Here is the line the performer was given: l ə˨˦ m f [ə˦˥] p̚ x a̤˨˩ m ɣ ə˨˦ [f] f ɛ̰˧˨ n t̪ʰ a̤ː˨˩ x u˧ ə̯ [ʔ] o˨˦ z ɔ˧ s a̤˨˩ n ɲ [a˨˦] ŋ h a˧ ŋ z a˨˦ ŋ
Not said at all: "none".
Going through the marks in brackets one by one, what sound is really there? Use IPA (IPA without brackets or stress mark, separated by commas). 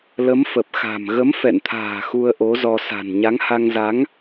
ə˨˩, m, ʔ, a˨˦